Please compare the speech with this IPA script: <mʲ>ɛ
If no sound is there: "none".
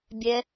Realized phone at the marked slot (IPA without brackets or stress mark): bʲ